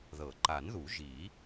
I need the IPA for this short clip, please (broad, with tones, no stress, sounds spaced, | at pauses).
ð ɤ˨˩˦ ǃ a˨˩˦ n ð u˨˩˦ ʒ i˨˩˦